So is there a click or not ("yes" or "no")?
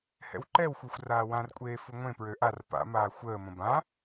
yes